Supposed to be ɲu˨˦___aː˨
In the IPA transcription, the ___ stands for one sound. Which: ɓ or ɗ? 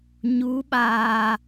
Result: ɓ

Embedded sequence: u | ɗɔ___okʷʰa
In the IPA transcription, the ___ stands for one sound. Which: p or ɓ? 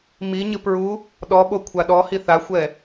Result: ɓ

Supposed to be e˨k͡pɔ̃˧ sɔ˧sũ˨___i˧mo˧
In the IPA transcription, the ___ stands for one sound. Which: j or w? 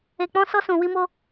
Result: w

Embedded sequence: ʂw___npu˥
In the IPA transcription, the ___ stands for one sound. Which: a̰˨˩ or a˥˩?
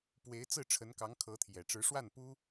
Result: a˥˩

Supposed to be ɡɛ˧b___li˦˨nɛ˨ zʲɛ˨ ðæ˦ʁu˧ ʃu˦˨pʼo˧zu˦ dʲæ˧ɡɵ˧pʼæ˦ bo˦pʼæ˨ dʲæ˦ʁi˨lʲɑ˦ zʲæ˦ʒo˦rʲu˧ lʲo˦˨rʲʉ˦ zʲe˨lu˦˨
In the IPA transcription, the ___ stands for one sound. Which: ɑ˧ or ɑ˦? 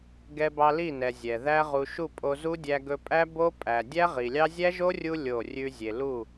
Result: ɑ˧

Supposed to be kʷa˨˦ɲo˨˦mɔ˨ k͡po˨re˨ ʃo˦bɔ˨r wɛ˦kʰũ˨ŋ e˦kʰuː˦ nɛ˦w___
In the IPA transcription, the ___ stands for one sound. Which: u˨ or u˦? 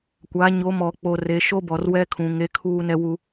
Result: u˦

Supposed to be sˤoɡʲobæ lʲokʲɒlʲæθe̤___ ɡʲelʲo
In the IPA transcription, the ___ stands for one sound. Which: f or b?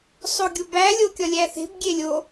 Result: b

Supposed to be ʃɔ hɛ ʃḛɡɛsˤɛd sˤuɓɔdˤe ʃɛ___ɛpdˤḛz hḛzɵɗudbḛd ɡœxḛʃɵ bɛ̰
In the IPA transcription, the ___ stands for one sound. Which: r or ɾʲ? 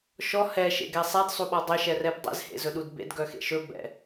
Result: r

